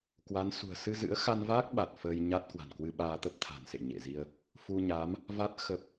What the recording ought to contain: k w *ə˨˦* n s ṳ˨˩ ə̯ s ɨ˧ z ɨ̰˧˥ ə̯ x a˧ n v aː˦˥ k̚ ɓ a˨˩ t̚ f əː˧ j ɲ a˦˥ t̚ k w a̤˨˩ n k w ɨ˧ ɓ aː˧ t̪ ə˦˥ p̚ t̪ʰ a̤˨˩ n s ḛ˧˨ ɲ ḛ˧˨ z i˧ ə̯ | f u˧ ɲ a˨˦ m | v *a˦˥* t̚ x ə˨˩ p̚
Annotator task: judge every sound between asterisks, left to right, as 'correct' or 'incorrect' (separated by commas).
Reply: incorrect, correct